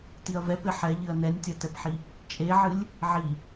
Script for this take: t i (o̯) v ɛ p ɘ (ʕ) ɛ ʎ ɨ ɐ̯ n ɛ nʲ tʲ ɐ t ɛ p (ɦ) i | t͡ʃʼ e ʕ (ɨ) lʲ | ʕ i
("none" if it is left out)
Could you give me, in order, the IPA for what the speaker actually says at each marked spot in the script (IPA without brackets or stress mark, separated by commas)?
ɐ̯, ħ, ħ, ɨ